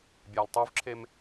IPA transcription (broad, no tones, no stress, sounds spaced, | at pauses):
bʲ aː l tˤ u v ǁʰ e m